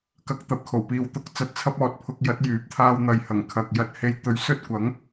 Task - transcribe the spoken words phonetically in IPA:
k ɐ˧ k̚ t̪ ɐ˨˥ p̚ kʰ o˨˩ w p iː˨ w t̪ ʊ˨˥ k̚ t͡s ɐ˨˥ t̚ t͡sʰ ɐ˧ p̚ ɔː˨˥ t̚ pʰ ʊ˧ k̚ j ɐ˨˥ t̚ j yː˨˥ p̚ t̪ʰ aː˧ w n̪ ɐ˨ j h ɐ˨˩ ŋ kʰ ɐ˨ k̚ j ɐ˧ t̚ h e˧ j t̪ ɵ˨˥ ɥ s ɵ˥ t̚ kʷ ɐ˨˥ ŋ

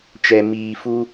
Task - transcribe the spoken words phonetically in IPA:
t͡ʃ ɛ˨ m iː˨ f u˦

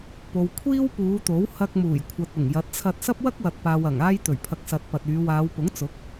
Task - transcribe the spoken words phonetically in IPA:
p o˨ w kʷʰ iː˥ w p uː˨˧ t̪ o˨˥ w h ɐ˧ k̚ m uː˨˩ j kʷʰ ɐ˨ t̚ ʊ˨˩ ŋ j ɐ˨˥ t̚ t͡sʰ ɐ˧ t̚ s ɐ˥ p̚ w ɐ˥ k̚ w ɐ˨ t̚ p aː˨ w ɐ˨˩ ŋ aː˧ j t̪ ɵ˨˩ ɥ pʰ ɐ˨ k̚ s ɐ˨ t̚ p ɐ˨ t̚ yː˨˧ w aː˨˧ w p ʊ˨˥ ŋ t͡s ʊ˨˥ k̚

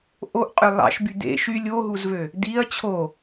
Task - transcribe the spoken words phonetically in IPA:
ʔ o ʔ qʼ ø lˠ ɑ̰ ʃ b y d̪ ḛ ʃ y lʲ o ɦ u z v ø | d̪ i ɐ̯ t͡ɕʰ o

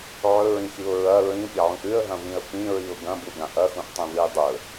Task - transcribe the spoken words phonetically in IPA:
ʕ ɵ ɹ ĩ x i ʊ̯ ɹ ɐ ɹ ĩ pʲ ɐ ʕ ũ ʔ ʉ ə̯ ɦ ɐ̃ v ĩ ə̯ p ĩ ɹ i ʊ̯ ɡ ɐ̃ b u ɡ ã ʔ ɐ x ũ ʔ tˤ ĩ v ɨ ɪ̯ dˤ ɵ

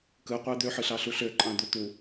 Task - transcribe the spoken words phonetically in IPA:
k ɯ qʷ æ d̪ ø ħ ɯ ɬ ɑ ɬ u ɬ ø ǃʼ ɑ̃ d̪ u t̪ u

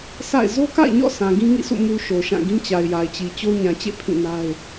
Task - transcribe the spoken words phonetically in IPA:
sʰ a̰˦˨ ɪ̯ z o˦ k a̰˦˨ ɪ̯ ɲ ɔ̰˦˨ sʰ ã˨ ɡ ĩ˦ ŋ ḭ˦˨ sʰ ṵ˦˨ m u˨ ʃ o˨ ʃ ã˦˨ ɡ ĩ˦ t͡ɕ a˨ ɪ̯ j a˨ ɪ̯ t͡ɕ i˨ t͡ɕ o˦ ɲ ã˨ t͡ɕ ḛ˦˨ pʰ ĩ˦˨ n a˦ ɪ̯

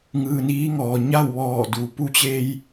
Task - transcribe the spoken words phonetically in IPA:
ŋ ɯː˧ n iː˧˥ ŋ ɔː˩ ɲ a˥˨ w ʋ ɔː˧˩ d u˩ p u˧ t͡ɕ e˧ j

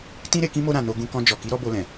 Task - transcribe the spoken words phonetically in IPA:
t ĩ˦ ɾ e˧ k ĩ˦ m o˧ ɾ ã˨ n o˧ ɡ ũ˧ k ɔ̃˧ d͡ʒ ɔ˨ k i˨˦ ɾ ɔ˧ b o˧ l ɛ̃˨

